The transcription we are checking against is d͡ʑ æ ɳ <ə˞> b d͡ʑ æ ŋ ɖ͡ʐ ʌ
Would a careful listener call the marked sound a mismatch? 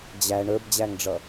no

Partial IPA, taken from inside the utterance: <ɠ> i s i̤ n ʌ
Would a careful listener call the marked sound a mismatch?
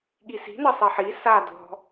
no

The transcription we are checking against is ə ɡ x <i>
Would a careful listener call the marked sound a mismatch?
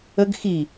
no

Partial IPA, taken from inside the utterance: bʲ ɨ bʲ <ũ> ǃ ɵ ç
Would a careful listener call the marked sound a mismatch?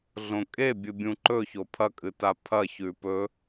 no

